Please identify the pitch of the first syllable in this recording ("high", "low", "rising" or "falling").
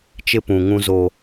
high